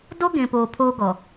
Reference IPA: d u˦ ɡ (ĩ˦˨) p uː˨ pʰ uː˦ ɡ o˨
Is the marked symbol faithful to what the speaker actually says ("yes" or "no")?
no